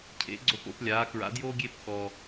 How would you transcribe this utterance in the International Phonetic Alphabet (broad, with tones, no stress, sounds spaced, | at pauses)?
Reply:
cʰ ḛ˩˧ ɡ͡ǀ o˨˩ p o̰˩˧ p lʲ aː˩˧ k ɹ a̰˩˧ d j oː˦ ɡʲ e˦˨ p k ɔ˨˩